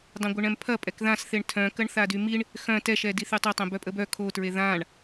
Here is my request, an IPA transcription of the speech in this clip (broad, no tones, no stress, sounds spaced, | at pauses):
dˤ ẽ ɡʷ ɘ ɳ ɛ̃ m pʰ ɐ pʼ ɛ k ð ã s θ e ɳ tʰ œ̃ k ɐ ɳ θ a d y m i ɳ | x œ̃ t ɛ ʃ ɛ d i θ y tˤ e tˤ ẽ b œ pʼ ə b œ kʰ o t ɹ e ð ã ɳ